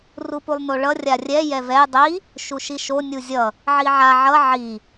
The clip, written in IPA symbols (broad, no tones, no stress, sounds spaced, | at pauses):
r u p u lˠ n o ɭ ʌ rʲ a rʲ ɛ j ɛ v ɛ j dˤ i | ʃ u ʃ i ʃ o nʲ u zʲ ʌ | ʕ i ʕ a ʕ ʌ ʕ i